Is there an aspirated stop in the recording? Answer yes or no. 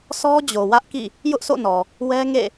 no